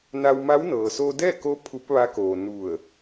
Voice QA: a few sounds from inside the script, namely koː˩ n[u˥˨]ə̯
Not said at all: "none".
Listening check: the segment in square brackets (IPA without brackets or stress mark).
u˧˩